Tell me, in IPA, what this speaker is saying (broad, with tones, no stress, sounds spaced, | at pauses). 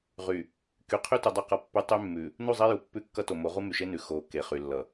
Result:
ʁ y˨ | k y˨ qʰ y˦ t u˨ dˤ ʉ˦˨ q ʌ˦ pː ʉ˦ tˤ y˦ mː ʉ˨ | n u˦˨ zˤ e˦ j u˨ pː ʉ˦ kː ʌ˦ t o˨ m o˨˦ ʁ u˦ m y˨ ʃ e˦ n ʉ˨ x o˨˦ k e˨ χ y˨ lː ʌ˨